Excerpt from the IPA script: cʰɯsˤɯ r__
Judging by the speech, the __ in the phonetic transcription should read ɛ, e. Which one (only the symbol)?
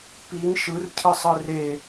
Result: e